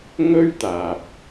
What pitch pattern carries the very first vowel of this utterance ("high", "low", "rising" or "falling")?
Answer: high